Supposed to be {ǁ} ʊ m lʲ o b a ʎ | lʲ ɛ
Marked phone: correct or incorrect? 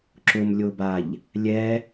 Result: correct